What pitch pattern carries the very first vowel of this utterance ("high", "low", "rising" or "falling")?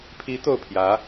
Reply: rising